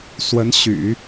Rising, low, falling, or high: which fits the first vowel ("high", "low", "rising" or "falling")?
rising